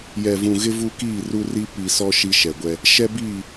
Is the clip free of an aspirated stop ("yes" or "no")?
yes